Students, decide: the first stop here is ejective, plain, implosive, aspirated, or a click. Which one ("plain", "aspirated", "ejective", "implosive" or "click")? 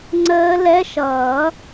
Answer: click